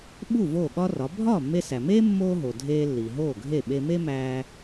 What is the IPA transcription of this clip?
ɓ u˥˩ v oː˥˩ ɠ ɒ˥ r ɒ˩˥ bʱ ɒː˥˩ mː e˧ s æ˩ m eː˥ mː oː˥ ɦ o˩ dʱ eː˧ lː i˩ ɦ oː˥˩ ɡʱ e˥˩ ɓ e˧ m e˥ m æː˧

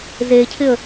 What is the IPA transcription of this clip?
z e cʰ ɪ ə̯

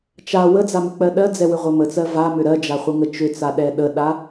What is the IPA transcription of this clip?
t͡ʃ a w ə d͡z a m ʏ k͡p ɜ ɗ ɜ d͡z ɛ w ʏ ʁʷ ɜ m ə t͡s ɜ v a m ʏ ɾ ɜ d͡ʒ a χʷ ɜ ŋ ə t͡ʃ ʏ t͡s a ɗ ɛ ɗ ə ɗ a

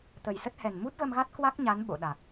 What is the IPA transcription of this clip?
t̪ ə˨˩ j s ə˦˥ t̚ h ɛ˨˩ n m u˦˥ t̚ ɣ ə˧ m ɣ a˦˥ t̚ k w a˦˥ k̚ ɲ a˨˦ n ɓ o̰˧˨ ɗ a˨˩ k̚

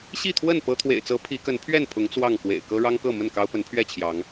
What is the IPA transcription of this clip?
ɕ i˥˨ t̪ʰ w ə˥˨ n p ɤ˦ t̪ʰ w ḛ˨˩ ɪ̯ t͡s ɤ˨˦ pʰ i˨˦ k ə˨˦ n pʰ ɥ ɛ˥˨ n pʰ ʊ˨˦ ŋ t͡s w ɑ˥˨ ŋ k w ḛ˨˩ ɪ̯ k ɤ˦ ɻ ɑ˦ ŋ k ɤ˥˨ m ə˥˨ n k ɑ˦ ʊ̯ p ə˨˦ n pʰ ɥ ɛ˥˨ t͡ɕʰ j ɑ˨˦ ŋ

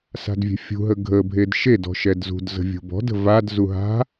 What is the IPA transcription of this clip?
s a̤ d vʲ ɛ̤ fʲ ṳ ɦ ə ɡʱ ə bʱ e d ʃ e d ɔ̤ ʃ ɛ d z ṳ d z ə̤ vʲ ṳ b ɔ̤ d ə̤ v a d z u ɦ a̤

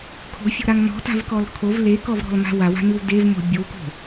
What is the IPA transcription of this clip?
kʰ o̤ fʲ o̤ ɾ a ŋ n ɔ̤ t a̤ v k ɔ l kʰ o v l e k ɔ v ɾ ɔ̤ l m a̤ w a w a̤ n ɯ w d e v m o̤ bʲ o k o̤

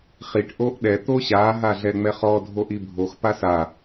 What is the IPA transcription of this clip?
χ i ʈ ʔ o ʔ ɗ ɛ t̪ o ɕ a ɦ a ɮ ɛ ŋ͡m ɛ χ ɔ dʱ o ʔ i bʱ o x p a s a

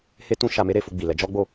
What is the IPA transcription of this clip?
h e˦ t ũ˦ ʃ a˧ m e˦ ɾ e˧ f o˧ ɡ͡b i˨ l ɛ˨˦ d͡ʒ ɔ˦ ɡ͡b o˦˨

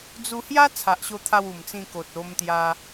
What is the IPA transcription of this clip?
d͡z u˧ h j a˦ t͡sʰ a˨ ʔ ɕ o˧ t̪ʰ a˧ w u˨˩ m t͡s ĩ˧ k o˨ t̚ o˧ m t̪ j a˧

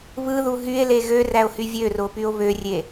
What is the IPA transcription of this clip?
β ɯ ð u ɦ y e̯ l e ɣ ø r æ o̯ h y vʲ ø r o p y o̯ β ø rʲ e

